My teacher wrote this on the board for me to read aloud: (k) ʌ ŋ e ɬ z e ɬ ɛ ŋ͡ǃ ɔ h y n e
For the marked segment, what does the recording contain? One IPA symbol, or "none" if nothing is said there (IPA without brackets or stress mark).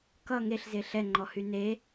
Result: k